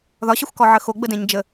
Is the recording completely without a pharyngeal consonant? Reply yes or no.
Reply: no